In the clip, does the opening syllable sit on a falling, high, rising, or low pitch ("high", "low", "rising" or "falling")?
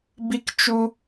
high